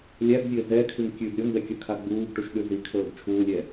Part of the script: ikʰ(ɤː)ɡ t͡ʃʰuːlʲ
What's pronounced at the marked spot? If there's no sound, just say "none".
ɤː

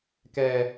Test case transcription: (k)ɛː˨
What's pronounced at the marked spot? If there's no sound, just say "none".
k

